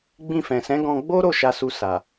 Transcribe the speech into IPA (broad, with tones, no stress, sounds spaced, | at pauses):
ɡ͡b ĩ˧ f ɛ̃˨ s ɛ̃˨˦ ɡ ɔ̃˧ ɡ͡b o˦ ɾ o˦˨ ʃ a˨ s u˨ s a˨